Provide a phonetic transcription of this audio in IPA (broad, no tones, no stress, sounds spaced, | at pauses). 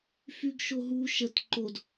f y ɡ ʃ o ɦ u ʃ ə t ǃ o d